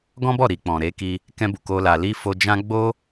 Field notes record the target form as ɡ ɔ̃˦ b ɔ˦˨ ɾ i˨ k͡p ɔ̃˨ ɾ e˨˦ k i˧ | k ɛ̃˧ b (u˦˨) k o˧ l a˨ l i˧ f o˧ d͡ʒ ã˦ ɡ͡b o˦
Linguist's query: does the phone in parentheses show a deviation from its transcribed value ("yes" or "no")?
yes